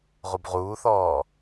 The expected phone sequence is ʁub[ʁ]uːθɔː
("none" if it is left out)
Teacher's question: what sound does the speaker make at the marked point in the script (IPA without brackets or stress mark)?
ʁ